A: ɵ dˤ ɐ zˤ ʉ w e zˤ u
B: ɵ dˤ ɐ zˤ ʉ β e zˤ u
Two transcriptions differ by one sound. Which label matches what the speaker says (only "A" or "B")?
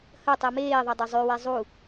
A